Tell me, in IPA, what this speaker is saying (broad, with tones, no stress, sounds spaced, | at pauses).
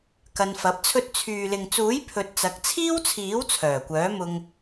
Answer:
k ɐ˧ n f ɐ˨˥ p̚ t͡sʰ ɵ˥ t̚ t͡sʰ yː˨ l ɪ˨ ŋ t͡s uː˨˥ j pʰ ɵ˧ t̚ t͡s ɐ˨˥ k̚ t͡sʰ iː˥ w t͡sʰ iː˨˥ w t͡sʰ œː˨˩ kʷ œː˨˥ m ʊ˧ ŋ